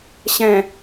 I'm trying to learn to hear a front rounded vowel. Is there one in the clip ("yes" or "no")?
no